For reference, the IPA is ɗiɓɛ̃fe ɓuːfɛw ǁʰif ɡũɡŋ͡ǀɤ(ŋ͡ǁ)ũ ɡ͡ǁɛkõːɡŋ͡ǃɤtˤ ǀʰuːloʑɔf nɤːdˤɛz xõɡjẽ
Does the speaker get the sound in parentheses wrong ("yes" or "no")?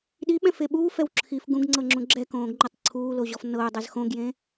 no